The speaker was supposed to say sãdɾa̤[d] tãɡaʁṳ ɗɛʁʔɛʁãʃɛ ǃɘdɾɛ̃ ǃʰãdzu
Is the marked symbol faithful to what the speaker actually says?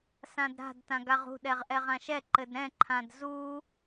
yes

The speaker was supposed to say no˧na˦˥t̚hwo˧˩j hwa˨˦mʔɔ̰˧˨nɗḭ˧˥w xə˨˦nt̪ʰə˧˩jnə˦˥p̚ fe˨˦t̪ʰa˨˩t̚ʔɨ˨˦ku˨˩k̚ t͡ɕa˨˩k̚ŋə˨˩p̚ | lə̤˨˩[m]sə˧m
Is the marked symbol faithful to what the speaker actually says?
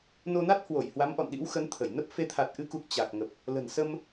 no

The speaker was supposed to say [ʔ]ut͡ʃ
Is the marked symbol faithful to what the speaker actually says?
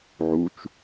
no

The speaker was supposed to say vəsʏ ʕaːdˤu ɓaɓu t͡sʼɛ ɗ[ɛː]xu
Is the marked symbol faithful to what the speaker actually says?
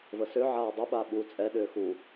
no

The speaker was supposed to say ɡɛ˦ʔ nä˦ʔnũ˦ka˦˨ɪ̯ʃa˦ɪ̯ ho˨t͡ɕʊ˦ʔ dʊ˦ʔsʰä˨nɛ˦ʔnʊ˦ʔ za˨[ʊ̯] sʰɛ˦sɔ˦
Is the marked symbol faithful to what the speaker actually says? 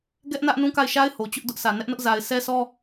no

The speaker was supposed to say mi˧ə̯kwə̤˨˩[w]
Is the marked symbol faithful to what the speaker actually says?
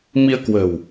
yes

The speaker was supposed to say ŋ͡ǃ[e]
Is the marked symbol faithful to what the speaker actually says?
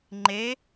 yes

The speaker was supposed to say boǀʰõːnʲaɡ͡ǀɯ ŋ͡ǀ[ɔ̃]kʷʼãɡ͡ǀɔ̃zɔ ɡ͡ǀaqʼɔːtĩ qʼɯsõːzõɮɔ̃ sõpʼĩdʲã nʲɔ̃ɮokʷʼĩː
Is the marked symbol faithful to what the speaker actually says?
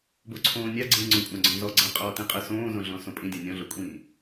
no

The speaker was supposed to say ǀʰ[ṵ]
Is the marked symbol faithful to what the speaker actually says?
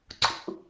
yes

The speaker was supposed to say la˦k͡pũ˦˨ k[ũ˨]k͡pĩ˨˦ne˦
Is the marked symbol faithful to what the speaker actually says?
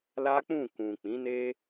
yes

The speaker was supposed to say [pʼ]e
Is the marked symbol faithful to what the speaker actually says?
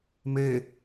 no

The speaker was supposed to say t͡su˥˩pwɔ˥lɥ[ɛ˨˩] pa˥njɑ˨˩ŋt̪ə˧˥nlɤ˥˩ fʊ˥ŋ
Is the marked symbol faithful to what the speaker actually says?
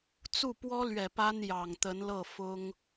yes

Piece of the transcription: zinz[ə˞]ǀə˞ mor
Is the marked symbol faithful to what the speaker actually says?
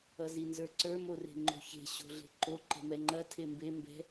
yes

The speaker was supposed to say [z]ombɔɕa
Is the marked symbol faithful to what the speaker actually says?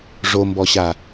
no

